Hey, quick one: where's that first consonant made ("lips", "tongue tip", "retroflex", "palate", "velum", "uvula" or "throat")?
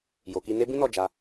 palate